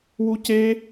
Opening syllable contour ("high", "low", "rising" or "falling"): high